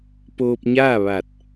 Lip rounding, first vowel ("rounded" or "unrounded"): rounded